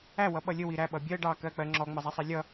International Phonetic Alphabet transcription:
æ w ʌ ɓ ʌ lʲ ə w i ɾ æ ɓ ʌ bʲ ɜ ɖ ɑ k ɜ k͡p ɜ ŋ͡ǁ ɔ ŋ͡m ə zˤ æ sˤ ɛ lʲ ʌ

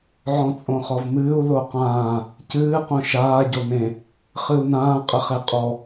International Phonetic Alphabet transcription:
ʕ ɔ̃ t͡sʼ õ χ ɔ v m ɨː u̯ l o q ãː | c ɨː q õ ʃ aː ɟ o n ẽ | χ ɨ u̯ n ãː qʼ ɘ χ e qʼ ɔ

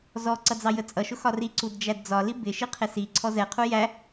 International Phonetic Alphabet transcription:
z ɔ ǀ ʌ d͡z ɑ j ə t͡sʼ ʌ ʃ ʊ x ɒ r i ǀ u d d͡ʒ æ d d͡z ɒ l i b ɪ ʃ i qʰ ɪ s i ǀʰ ɔ z ɛ qʰ u j æ

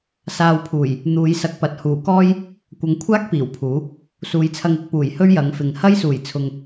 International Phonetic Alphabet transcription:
s aː˧ w pʰ uː˨˩ j | n̪ uː˨˧ j s ɐ˧ k̚ p ɐ˨ t̚ h uː˨˩ k ɔː˥ j | kʷ ɐ˨˧ ŋ kʷʰ aː˥ k̚ p iː˨˩ w pʰ uː˨˥ | s uː˨˧ j t͡sʰ ɐ˧ ŋ ɪ˨˥ k̚ p uː˨˩ j h ɵ˥ ɥ j ɐ˨˧ ŋ f ɪ˨ ŋ h ɐ˥ j s uː˨˩ j t͡sʰ ʊ˨ ŋ

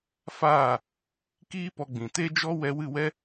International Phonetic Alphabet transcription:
f aː˦˨ | k iː˦ p ɔ˧ ɡ͡b ĩ˨ t e˦ d͡ʒ ɔ˦ w ɛ˧ w ɨ˦˨ w ɛ˦

